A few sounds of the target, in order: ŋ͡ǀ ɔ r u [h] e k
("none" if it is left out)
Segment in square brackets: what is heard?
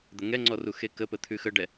x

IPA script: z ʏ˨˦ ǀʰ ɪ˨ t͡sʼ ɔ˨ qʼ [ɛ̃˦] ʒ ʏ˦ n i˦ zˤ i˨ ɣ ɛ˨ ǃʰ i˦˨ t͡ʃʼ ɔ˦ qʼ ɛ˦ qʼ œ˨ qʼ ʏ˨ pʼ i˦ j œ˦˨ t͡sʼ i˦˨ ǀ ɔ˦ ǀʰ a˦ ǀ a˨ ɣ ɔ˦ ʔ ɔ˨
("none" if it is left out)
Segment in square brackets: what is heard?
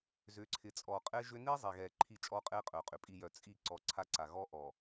ɛ˦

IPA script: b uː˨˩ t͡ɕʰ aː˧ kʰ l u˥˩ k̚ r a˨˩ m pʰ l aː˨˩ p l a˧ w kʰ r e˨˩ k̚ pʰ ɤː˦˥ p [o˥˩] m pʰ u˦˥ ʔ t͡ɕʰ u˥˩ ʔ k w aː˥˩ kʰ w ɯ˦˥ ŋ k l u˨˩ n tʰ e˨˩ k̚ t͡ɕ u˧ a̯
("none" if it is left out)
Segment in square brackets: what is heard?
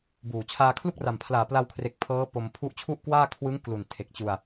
o˧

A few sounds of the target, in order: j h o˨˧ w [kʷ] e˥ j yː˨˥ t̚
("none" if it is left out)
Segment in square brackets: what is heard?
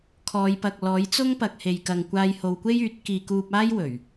kʷ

